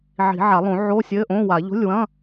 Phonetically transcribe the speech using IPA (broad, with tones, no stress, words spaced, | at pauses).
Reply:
ʕi̤˨˩˦ʕa˨˩˦lˠõ˨˩˦ ʕo˧˥˧sʲɘ˧˥˧ʔõ˧˥˧wa˨˩˦ ʎo̤˧˥˧lʲwɐ̃˧˥˧